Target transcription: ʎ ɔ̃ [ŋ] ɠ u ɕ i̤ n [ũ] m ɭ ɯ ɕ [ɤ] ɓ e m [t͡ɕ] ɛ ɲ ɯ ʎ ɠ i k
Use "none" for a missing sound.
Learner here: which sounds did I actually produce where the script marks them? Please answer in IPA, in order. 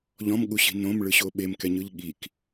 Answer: m, õ, o, k

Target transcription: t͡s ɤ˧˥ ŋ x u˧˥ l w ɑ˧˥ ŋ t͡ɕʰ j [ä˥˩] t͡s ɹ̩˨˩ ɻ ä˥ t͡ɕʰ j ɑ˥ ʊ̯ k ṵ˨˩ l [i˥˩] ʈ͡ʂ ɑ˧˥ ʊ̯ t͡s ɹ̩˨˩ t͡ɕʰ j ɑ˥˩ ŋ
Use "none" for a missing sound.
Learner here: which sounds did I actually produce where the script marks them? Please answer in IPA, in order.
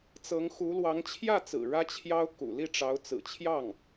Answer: ä˥˩, i˥˩

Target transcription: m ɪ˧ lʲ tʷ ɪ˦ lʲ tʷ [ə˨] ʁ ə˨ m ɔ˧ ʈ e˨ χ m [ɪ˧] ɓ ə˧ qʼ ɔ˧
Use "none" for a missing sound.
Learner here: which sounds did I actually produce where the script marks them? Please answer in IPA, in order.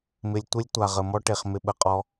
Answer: a˨, ɪ˧

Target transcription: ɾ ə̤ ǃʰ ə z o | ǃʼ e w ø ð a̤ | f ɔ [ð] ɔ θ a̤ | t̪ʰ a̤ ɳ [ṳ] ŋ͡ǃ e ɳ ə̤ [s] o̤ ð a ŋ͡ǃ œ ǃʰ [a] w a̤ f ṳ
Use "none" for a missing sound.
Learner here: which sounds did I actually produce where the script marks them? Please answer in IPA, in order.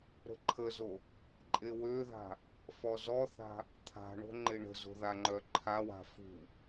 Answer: z, o̤, z, a

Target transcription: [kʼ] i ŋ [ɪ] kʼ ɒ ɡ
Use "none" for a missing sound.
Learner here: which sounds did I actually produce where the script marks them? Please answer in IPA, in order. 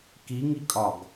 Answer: k, i

